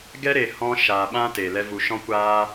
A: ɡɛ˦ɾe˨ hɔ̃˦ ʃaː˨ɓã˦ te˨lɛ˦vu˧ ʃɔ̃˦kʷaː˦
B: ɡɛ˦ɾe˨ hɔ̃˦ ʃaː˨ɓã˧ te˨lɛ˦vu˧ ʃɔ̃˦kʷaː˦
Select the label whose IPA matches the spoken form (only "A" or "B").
A